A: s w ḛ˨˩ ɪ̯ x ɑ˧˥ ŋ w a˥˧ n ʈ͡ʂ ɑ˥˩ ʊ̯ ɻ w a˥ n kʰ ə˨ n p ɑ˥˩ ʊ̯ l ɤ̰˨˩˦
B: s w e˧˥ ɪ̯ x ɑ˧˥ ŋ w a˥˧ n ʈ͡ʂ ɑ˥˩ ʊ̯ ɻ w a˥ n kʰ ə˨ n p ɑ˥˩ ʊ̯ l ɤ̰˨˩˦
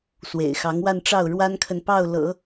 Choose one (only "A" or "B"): A